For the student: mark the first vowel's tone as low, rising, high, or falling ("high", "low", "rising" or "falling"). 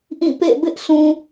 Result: falling